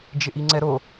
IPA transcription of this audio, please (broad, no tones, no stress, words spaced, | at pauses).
d͡ʒɪʔiŋ͡ǀɛɾo